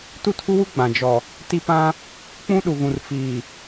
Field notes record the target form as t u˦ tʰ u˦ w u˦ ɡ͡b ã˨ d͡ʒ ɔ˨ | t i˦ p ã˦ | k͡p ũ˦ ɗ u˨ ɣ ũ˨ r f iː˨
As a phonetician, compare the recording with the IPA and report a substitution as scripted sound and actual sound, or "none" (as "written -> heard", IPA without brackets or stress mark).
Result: none